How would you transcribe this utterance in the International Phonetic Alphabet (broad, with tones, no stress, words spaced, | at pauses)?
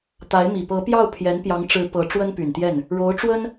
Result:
t̪a˧˥ɪ̯mi˨˩ pɤ˧˥pjɑ˥˩ʊ̯ pʰjɛ˧˥npjɑ˧˥ŋʈ͡ʂɻ̩˧˥ pɤ˧˥ ʈ͡ʂwə˥npy˨˩nt̪jɛ˥˩n | ɻo˧˥ʊ̯ʈ͡ʂwə˥n